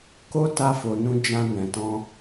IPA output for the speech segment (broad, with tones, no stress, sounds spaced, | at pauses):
k o˦ t a˧ f o˨ n ũ˧ d͡ʒ ã˧ n ɛ̃˨ t ɔ̃˧